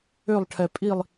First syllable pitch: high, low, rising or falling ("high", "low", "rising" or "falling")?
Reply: falling